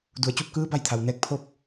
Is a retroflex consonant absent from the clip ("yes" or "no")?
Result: yes